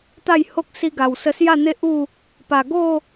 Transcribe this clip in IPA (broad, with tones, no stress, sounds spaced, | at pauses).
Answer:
t̪ a˥˧ j h o˦ k̚ s i˧ ɡ a˨˩ w s ə˧ s j a˥˧ n̪ e˦ ʔ u˥˧ | p a˨˩ ɡ o˥˧